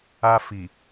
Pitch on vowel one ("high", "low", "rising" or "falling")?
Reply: high